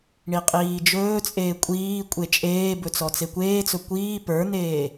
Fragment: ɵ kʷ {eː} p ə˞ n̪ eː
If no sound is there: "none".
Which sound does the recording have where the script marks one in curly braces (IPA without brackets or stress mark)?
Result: iː